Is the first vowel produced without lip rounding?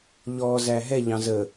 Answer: no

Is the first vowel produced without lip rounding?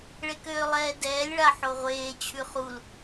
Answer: yes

